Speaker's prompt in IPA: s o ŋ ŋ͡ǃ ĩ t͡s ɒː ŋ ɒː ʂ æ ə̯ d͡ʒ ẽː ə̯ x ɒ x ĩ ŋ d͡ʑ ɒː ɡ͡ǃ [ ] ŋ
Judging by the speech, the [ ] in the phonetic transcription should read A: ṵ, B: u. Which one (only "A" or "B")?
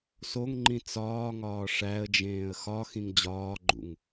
A